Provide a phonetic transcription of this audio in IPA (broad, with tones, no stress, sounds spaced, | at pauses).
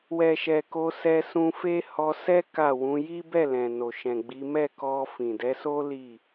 w ɛ˨ ʃ ɛ˨ k o˧ s ɛ˧ s ũ˧ f e˦ h ɔ˧ s ɛ˦ k a˦˨ w ũ˨˦ j i˦ b ɛ˦˨ l ɛ̃˨ n o˨ ʃ ɛ̃˨ ɡ͡b i˨˦ m ɛ˦˨ k ɔ˧ f ĩ˨ d ɛ˨˦ s o˦ l i˦˨